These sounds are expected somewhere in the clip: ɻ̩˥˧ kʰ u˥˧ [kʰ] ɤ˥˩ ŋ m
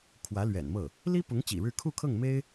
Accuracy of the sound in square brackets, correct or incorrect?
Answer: correct